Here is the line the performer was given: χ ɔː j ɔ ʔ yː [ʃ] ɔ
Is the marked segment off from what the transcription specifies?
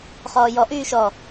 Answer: no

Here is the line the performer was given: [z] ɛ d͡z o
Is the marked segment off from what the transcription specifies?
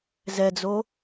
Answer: no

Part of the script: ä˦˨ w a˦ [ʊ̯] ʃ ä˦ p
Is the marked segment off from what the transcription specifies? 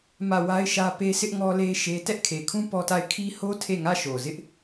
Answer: yes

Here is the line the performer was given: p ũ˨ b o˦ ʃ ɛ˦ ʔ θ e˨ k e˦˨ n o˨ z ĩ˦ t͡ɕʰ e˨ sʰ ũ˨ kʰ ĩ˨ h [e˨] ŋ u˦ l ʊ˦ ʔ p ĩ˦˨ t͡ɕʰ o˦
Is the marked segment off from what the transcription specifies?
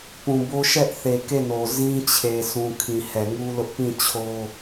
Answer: yes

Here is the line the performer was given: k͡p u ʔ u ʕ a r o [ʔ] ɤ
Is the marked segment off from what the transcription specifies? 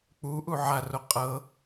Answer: yes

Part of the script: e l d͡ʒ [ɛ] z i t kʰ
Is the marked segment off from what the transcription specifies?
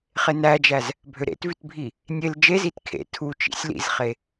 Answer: yes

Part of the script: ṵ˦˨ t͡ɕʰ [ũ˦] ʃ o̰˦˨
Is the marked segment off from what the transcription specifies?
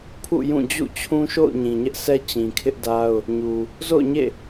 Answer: no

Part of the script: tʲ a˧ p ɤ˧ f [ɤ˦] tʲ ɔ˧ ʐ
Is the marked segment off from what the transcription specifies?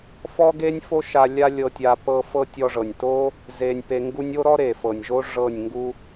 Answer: no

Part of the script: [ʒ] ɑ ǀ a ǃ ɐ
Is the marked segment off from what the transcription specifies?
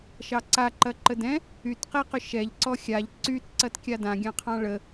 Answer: yes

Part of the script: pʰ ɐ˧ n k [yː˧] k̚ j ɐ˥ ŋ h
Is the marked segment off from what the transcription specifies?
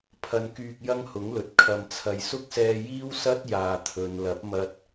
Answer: no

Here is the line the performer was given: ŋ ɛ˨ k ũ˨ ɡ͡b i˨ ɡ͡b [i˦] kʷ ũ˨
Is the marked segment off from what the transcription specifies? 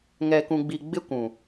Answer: yes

